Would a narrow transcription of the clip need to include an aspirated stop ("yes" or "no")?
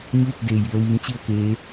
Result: no